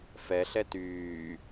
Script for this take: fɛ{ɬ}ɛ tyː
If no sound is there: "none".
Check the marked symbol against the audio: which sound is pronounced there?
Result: ɬ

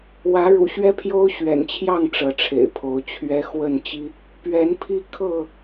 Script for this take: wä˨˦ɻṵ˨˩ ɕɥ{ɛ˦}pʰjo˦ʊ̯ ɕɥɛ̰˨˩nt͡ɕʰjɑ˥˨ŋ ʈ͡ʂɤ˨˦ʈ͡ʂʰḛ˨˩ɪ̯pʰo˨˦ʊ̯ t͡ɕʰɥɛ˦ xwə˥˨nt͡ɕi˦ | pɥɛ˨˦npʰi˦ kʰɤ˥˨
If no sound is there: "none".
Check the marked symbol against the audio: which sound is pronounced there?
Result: ɛ˦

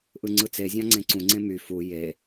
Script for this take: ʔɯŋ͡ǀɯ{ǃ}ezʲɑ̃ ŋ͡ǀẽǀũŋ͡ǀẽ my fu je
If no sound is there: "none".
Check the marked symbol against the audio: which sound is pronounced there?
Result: t͡s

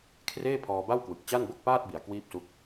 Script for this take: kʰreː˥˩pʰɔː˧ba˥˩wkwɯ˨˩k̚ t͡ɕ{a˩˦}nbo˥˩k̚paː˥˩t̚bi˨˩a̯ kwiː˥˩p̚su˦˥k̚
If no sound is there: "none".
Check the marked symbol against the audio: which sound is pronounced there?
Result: a˥˩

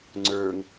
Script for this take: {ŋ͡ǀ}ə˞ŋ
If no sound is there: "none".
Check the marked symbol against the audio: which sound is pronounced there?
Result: ŋ͡ǀ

